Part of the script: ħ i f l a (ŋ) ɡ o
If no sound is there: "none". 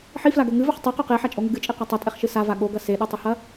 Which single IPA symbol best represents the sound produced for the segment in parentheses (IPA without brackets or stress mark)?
none